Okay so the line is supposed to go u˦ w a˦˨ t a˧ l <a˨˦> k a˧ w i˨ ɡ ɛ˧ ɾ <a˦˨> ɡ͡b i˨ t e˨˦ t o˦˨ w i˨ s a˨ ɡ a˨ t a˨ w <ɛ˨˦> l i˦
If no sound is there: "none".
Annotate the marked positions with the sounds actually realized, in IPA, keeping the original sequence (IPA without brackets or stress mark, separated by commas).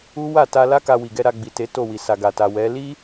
a˦, a˧, ɛ˨˦